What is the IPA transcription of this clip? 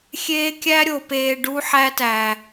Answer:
xʲeː˦kʲæ˦ɾʲo˨peː˨ ɖu˦ħæ˦tæ˨

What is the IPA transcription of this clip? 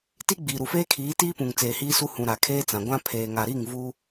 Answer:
ti˦ɡ͡biː˨ɾu˨feː˦ kʰiː˨˦tiː˦pũ˨ŋ t͡seː˨hiː˦su˦ hũ˨ ɾa˨kʰeː˦t͡sã˨ɡʷã˦ pʰeː˨ŋa˨ɾi˦˨ŋ vu˦

